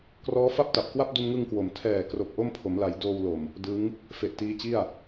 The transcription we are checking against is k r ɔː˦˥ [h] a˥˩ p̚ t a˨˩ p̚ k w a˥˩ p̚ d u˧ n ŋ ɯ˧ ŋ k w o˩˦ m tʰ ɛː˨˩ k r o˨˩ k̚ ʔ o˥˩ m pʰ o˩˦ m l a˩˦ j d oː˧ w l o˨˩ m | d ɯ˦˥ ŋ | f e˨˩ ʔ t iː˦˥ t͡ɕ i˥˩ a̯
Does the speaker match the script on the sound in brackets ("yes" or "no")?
no